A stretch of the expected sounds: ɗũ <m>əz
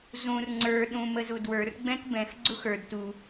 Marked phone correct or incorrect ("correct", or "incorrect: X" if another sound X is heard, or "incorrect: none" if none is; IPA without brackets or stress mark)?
correct